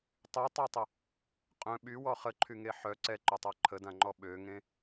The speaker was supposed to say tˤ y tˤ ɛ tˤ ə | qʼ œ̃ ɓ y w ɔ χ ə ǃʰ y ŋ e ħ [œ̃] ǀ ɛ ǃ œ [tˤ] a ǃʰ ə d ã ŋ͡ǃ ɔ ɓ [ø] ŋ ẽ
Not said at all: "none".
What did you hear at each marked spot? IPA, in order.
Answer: œ, tˤ, ø

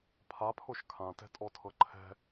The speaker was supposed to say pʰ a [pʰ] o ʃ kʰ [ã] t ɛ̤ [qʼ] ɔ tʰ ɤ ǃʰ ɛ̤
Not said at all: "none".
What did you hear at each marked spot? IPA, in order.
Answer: pʰ, ã, tʼ

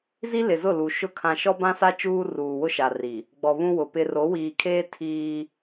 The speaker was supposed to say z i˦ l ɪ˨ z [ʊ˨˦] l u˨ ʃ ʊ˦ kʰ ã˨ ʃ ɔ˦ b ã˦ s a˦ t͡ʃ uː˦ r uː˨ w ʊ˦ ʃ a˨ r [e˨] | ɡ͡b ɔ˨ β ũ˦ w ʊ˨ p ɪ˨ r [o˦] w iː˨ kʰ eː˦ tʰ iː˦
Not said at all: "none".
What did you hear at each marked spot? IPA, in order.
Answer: ʊ˦˨, i˨, o˨˦

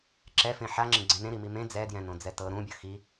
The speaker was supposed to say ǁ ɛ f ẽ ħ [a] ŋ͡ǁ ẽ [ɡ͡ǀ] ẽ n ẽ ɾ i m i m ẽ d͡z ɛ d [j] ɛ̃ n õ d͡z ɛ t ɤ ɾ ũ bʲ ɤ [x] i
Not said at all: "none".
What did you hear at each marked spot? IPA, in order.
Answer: a, ɡ͡ǀ, j, x

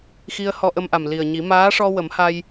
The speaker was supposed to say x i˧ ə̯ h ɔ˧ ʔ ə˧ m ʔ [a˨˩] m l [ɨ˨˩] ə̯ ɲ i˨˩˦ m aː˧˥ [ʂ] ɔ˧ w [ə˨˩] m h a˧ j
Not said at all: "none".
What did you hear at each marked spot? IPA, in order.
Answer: a˨˩, i˨˩, ʂ, ə˨˩˦

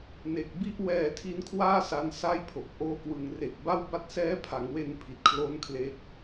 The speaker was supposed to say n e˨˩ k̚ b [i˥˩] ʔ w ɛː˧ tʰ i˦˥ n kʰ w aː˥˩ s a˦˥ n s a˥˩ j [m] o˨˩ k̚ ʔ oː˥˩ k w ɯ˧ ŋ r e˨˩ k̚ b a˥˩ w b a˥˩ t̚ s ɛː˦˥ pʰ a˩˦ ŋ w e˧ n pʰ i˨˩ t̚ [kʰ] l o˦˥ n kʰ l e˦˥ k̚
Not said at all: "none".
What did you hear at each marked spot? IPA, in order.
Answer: i˥˩, pʰ, kʰ

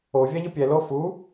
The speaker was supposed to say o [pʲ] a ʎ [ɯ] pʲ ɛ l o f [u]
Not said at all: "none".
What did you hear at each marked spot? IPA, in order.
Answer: vʲ, ɯ, u

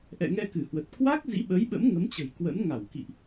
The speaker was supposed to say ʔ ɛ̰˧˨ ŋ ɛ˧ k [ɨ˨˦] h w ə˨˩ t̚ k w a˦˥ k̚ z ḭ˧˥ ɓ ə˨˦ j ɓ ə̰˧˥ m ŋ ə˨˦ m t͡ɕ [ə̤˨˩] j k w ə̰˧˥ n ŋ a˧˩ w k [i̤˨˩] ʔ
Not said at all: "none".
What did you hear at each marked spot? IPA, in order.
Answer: ɨ˧˩, ə̤˨˩, ḭ˧˨

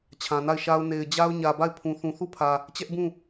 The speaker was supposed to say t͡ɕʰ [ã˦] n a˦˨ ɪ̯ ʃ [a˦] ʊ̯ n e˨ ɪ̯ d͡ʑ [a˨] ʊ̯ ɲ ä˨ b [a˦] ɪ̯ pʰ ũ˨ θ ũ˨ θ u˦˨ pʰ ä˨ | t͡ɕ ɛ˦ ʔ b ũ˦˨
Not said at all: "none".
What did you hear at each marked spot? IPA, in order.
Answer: ã˨, a˦, a˦, a˦˨

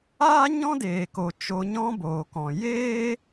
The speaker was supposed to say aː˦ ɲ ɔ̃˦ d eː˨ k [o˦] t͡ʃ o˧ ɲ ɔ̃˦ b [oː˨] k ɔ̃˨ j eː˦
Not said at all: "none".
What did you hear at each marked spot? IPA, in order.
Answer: o˨, oː˨

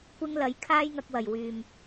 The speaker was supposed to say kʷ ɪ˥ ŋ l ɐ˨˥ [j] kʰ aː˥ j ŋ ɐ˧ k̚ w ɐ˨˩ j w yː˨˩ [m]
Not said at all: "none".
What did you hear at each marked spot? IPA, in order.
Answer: j, m

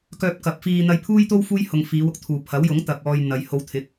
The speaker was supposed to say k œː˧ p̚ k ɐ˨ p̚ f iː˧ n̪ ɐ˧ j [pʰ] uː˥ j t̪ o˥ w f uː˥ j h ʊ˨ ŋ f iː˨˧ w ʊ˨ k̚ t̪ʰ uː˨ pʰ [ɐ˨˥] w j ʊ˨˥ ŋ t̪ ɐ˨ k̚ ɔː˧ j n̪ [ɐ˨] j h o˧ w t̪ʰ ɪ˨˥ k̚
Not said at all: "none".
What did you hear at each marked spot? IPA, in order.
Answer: pʰ, ɐ˨˥, ɐ˨

